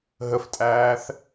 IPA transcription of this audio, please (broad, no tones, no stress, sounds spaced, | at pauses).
ɦ ə f tʼ æː θ